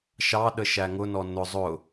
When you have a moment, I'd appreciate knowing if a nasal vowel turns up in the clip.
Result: no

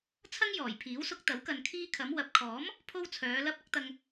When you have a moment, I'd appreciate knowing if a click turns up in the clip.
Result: no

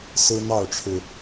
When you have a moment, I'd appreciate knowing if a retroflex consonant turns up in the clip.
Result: yes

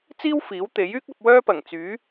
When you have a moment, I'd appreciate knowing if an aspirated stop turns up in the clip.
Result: no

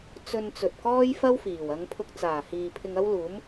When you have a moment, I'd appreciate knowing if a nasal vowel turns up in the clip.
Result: no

